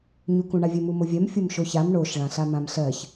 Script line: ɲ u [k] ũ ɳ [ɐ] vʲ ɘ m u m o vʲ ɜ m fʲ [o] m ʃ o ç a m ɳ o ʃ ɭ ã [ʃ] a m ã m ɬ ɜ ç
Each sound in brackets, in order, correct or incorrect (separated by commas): correct, incorrect, correct, incorrect